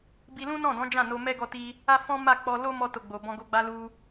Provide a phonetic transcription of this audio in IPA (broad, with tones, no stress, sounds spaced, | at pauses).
b i˧ l ũ˦ n ɔ̃˦˨ d ɔ̃˨˦ d͡ʒ ã˦˨ n o˧ m ɛ˦ ɡ ɔ˧ t i˧ | a˦ f ɔ̃˦ m a˦˨ k͡p ɔ˧ l o˦ m ɔ˧ t o˨ ɡ͡b o˨ b ɔ̃˧ ɡ o˧ ɡ͡b a˧ l u˧